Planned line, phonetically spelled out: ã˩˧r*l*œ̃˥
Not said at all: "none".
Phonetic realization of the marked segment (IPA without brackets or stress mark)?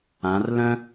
l